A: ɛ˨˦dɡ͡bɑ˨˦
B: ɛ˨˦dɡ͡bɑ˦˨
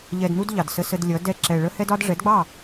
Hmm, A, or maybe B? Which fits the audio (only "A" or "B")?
B